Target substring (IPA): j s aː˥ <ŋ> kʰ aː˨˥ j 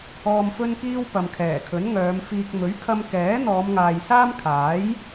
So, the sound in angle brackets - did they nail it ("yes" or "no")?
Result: no